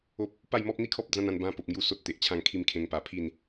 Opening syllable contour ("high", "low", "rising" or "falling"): high